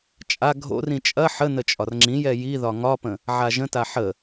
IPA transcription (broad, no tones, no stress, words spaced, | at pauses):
t͡ʃʼa ɡʱo̰rĩ t͡ʃʼɐ ħənə t͡ʃʼɒrŋ͡ǁĩjɛ jiðɒ ŋɒpə̃ | ʕaʒə̃ta ħə